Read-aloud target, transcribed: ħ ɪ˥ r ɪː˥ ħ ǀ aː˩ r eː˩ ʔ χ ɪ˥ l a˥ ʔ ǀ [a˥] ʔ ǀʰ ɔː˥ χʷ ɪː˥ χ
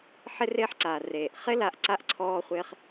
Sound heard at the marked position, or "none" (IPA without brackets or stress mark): a˥